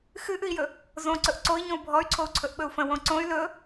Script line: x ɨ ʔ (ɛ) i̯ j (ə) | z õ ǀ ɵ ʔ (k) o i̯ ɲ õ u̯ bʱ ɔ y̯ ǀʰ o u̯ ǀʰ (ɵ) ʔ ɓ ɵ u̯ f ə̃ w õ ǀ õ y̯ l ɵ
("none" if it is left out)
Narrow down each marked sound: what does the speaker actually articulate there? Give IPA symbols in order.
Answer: ɨ, ɵ, ǀ, ɵ

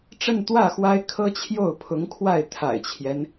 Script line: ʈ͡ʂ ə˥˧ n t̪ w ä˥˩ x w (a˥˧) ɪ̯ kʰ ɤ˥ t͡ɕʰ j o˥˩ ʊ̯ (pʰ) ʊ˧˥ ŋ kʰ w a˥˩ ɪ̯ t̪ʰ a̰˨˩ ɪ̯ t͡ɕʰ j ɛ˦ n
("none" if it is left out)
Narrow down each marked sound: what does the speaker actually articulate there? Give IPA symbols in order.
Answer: a˥, pʰ

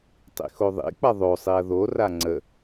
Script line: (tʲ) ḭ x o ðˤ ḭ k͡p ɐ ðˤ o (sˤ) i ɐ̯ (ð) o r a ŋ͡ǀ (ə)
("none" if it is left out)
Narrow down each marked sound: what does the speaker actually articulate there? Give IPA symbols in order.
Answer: tˤ, sˤ, ð, ə

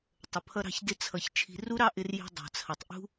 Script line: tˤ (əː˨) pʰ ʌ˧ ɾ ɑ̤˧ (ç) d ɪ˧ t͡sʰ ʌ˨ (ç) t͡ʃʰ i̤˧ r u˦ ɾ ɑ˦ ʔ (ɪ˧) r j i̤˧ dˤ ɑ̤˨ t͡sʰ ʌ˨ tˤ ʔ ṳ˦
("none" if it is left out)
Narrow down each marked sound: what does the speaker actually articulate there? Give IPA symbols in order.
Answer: ə˨, ç, ç, ɪ˧

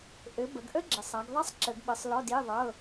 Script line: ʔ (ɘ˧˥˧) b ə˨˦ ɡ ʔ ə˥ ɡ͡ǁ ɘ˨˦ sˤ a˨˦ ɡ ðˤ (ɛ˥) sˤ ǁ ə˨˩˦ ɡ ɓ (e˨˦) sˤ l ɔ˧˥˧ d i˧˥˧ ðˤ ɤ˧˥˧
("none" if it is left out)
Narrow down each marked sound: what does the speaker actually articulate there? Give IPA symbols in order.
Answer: ɘ˨˦, ɛ˥, ɘ˨˦

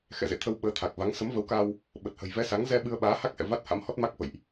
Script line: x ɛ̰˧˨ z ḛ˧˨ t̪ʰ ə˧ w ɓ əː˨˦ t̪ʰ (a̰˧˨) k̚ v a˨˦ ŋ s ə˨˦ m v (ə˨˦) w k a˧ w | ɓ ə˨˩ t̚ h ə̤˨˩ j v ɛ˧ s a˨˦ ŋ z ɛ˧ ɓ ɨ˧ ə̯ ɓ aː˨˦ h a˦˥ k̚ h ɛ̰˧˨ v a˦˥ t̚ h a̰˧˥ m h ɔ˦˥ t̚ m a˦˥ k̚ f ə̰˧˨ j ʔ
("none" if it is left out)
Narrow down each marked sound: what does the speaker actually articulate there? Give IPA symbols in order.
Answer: a˨˩, ə˨˦

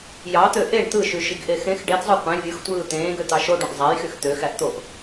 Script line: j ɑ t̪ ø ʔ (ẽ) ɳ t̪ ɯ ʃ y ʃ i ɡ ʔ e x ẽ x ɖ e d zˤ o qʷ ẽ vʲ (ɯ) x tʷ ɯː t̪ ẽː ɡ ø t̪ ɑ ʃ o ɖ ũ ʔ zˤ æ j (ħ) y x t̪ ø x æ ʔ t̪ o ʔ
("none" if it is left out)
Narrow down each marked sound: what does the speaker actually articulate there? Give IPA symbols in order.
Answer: e, ɯ, x

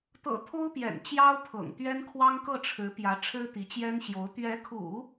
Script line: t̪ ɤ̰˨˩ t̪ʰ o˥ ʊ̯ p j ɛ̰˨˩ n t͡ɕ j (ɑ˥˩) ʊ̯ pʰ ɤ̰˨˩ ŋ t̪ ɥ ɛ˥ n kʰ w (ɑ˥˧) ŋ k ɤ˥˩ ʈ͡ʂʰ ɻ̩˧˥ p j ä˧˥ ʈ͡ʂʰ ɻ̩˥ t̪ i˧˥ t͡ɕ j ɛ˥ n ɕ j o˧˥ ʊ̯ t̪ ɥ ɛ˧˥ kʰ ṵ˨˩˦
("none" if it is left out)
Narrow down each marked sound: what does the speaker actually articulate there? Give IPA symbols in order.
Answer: ɑ˥, ɑ˥

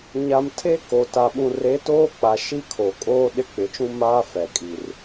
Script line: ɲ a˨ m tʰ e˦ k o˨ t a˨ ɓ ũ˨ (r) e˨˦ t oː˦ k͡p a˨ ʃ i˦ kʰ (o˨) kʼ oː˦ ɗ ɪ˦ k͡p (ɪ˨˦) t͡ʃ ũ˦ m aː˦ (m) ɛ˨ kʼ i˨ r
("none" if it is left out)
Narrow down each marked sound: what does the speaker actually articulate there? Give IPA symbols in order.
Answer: r, o˨, ɪ˨˦, f

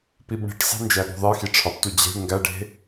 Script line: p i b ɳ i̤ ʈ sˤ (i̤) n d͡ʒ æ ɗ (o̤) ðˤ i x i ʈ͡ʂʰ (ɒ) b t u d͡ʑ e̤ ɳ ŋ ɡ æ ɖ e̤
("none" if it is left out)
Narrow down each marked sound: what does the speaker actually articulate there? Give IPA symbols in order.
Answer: e̤, o̤, ɒ

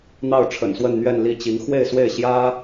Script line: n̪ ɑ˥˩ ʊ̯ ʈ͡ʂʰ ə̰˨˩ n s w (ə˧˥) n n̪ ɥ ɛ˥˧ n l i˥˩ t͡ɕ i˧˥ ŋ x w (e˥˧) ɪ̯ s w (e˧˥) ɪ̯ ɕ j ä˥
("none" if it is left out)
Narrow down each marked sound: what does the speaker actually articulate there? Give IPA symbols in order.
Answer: ə˥˧, e˥˧, e˥˩

